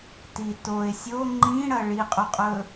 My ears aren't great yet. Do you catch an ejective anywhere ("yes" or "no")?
yes